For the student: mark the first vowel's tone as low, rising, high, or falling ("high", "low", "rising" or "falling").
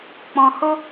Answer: low